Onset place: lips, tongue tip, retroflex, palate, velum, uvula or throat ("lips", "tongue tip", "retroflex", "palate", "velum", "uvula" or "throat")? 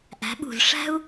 throat